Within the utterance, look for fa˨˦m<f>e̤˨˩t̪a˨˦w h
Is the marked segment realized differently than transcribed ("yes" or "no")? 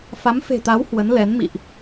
no